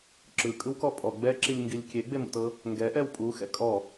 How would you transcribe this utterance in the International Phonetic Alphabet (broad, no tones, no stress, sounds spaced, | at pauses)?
ǁ ɯ kʼ ɯ w k ɔ pʼ ɔ ɡ͡b ɛ ǁ i lʲ ŋ ɡ i lʲ kʲ e ɡ͡b e m ṵ t ɤ | ŋ ɡ ɛ ʔ ɛ w pʼ u x ɛ̰ kʼ ɔ